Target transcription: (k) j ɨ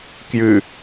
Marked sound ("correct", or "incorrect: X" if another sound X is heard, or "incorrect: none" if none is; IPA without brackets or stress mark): correct